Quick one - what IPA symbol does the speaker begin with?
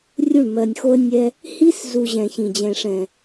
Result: rʲ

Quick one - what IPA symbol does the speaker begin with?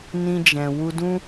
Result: n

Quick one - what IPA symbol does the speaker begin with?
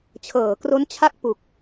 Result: t͡ɕʰ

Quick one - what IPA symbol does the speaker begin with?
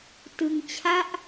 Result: t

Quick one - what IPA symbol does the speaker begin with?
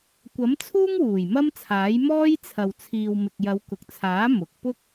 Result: kʷ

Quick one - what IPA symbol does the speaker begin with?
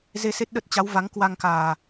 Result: z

